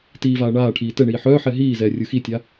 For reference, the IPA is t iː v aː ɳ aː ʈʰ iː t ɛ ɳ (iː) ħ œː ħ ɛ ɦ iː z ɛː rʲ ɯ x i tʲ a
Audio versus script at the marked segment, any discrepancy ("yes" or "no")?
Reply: no